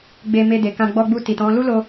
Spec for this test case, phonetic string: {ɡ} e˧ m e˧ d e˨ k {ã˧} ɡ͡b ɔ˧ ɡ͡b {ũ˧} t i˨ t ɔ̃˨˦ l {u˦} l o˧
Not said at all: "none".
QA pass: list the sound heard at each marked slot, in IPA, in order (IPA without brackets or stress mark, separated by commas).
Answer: ɡ͡b, ã˧, u˧, u˦